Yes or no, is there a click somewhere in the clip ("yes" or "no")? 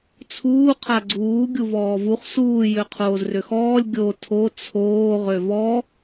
yes